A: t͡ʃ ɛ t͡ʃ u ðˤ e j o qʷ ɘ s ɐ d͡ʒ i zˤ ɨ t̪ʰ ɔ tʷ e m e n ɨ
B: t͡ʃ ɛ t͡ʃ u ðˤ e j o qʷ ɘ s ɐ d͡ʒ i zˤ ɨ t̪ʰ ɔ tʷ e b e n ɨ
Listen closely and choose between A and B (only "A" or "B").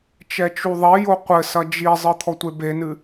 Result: B